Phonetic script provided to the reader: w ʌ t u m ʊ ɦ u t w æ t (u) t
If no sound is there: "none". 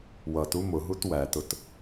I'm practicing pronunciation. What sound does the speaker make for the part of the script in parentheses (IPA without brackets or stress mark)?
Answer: ʊ